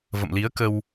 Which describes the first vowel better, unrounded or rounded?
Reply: unrounded